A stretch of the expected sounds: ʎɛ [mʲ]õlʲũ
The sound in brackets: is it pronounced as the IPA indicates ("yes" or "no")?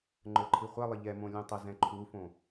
no